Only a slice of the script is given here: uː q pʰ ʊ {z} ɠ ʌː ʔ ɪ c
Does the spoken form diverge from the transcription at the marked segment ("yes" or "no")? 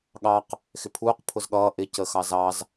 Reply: no